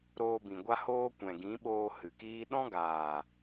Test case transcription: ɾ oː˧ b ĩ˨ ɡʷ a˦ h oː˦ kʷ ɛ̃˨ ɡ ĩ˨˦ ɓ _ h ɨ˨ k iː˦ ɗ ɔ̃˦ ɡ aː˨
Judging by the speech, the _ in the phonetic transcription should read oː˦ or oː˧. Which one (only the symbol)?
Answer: oː˧